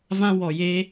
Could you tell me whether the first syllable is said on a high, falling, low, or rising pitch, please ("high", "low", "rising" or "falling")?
high